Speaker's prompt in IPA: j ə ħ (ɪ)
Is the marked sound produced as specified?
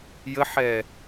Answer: no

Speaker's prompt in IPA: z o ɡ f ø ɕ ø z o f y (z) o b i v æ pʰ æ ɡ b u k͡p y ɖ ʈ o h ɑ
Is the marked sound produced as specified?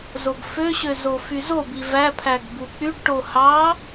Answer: yes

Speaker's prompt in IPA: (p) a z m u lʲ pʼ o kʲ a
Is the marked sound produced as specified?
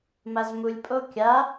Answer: no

